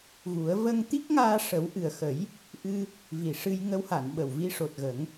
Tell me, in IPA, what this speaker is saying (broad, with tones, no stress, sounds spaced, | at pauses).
ɣ u˨˩˦ ə̯ v ə˧ ŋ t̪ i˦˥ k̚ ŋ aː˧ ʂ ə˨˩˦ w ʔ ɨ˨˩ ə̯ x ə˨˩˦ j | ʔ ɨ˧ | v i˨˩ ʂ ɨ˧ j ŋ ə˧˥ w h a˨˩˨ n ɓ ə˨˩ w v i˧ ʂ o˨˩ t̚ ɣ ə˨˩˦ ŋ